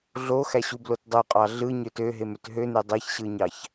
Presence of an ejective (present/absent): present